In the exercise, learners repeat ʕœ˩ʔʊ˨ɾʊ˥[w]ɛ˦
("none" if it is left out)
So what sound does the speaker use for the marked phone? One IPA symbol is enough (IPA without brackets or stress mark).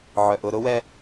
w